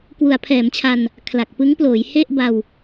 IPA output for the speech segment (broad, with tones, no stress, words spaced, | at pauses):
kwu˩˦a̯pʰɛː˩˦mt͡ɕʰa˧n | kʰla˨˩k̚ pɯ˦˥ŋploː˩˦j he˥˩ʔba˧w